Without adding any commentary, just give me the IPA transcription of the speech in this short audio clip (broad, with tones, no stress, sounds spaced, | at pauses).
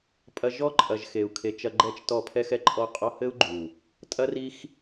pʼ ɐ˧ ʒ ɔ˦ ǃʼ ɐ˨ ʒ x e˨ u̯ kʰ e˨˦ t͡ʃ ɐ˧ ɡ͡ǃ ɛ˦ t͡ʃ t ɔ˦˨ pʰ ɛ˦ x ɛ˦ ǃʼ ɔ˦ qʼ ɔ˦ h ɘ˦ u̯ ɡ͡ǃ u˨ | tʼ ɐ˦ r i˦ x